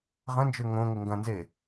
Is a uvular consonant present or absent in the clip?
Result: present